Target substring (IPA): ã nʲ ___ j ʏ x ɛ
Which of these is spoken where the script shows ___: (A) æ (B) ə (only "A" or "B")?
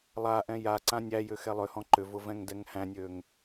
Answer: A